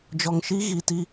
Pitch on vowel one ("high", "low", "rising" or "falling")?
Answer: low